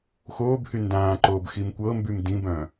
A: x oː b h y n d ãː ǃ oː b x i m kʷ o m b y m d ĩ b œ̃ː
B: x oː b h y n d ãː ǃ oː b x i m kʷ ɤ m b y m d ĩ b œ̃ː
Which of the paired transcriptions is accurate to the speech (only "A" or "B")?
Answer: B